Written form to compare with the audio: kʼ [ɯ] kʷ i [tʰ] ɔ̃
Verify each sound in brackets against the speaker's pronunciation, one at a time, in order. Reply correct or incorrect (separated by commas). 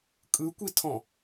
correct, correct